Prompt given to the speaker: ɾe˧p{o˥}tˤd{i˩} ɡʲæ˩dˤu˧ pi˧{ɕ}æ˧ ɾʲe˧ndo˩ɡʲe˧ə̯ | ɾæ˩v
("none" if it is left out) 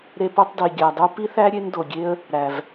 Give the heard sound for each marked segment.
o˧, i˩, θ

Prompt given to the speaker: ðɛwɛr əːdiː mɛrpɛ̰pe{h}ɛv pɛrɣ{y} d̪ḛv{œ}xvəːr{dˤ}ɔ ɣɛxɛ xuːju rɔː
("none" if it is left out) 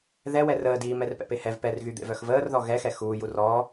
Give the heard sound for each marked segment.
h, y, œ, ð

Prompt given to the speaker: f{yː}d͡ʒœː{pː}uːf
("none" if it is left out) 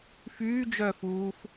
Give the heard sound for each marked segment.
yː, f

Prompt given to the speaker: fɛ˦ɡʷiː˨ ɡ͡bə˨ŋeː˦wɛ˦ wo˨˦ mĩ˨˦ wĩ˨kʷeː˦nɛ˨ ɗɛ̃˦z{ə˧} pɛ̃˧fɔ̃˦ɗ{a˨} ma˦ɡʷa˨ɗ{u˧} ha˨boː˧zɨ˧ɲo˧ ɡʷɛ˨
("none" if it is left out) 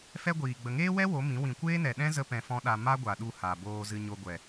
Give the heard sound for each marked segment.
ə˧, a˧, u˧

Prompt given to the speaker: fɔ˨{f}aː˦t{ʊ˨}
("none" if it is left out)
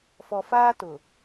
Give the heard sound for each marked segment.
f, ʊ˨

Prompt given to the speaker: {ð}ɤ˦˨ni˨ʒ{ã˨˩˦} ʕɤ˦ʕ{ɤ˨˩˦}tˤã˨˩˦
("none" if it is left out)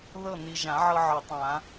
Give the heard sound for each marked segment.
ð, ã˨˩˦, ɤ˨˩˦

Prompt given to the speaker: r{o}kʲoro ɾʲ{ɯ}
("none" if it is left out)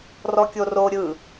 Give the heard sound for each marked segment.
ɔ, ɯ

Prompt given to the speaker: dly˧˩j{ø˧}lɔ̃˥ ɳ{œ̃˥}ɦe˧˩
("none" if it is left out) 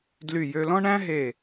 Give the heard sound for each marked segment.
ø˧, æ̃˥

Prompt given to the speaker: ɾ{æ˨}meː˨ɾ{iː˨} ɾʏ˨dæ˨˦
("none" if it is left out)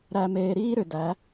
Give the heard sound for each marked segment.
æ˨, iː˦

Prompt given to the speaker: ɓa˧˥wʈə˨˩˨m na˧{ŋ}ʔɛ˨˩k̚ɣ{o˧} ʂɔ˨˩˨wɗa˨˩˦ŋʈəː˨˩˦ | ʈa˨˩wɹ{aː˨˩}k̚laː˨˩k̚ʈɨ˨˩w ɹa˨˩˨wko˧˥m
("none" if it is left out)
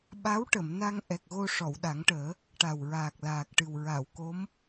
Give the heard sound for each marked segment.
ŋ, o˧, aː˨˩

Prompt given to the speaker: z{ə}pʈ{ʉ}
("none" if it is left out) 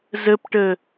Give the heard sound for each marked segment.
ə, ə

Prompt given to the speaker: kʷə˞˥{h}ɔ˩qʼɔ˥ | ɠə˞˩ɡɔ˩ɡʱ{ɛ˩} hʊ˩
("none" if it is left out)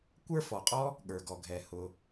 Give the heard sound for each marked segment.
f, ɛ˩

